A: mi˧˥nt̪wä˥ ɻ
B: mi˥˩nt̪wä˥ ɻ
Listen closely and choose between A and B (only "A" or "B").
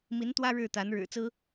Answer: A